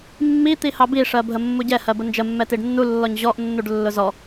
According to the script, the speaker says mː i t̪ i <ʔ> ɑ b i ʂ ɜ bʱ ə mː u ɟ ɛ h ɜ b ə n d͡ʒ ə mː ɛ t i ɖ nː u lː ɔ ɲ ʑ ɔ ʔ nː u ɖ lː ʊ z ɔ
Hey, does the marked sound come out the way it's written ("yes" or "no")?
no